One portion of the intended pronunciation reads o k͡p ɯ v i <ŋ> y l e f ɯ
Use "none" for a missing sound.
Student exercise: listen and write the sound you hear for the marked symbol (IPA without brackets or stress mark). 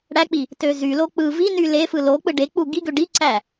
n